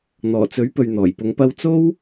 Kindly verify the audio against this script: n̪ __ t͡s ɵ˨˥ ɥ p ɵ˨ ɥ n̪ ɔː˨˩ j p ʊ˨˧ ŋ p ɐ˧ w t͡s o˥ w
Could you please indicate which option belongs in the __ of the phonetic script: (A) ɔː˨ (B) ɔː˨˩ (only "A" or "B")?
B